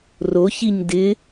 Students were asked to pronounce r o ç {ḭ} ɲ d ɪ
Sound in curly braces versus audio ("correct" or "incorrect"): incorrect